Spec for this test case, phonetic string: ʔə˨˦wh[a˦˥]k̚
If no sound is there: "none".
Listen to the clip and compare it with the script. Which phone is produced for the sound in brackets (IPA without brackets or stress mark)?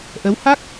a˦˥